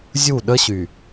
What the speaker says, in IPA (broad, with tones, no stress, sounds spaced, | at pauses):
zʲ u˦˨ ɗ ə˦ ɕ y˨